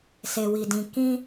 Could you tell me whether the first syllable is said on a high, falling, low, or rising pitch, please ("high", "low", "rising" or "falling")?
low